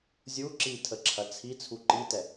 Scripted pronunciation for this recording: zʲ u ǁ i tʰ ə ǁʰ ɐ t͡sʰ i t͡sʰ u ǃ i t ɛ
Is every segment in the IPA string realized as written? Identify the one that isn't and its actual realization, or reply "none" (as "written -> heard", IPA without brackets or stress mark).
none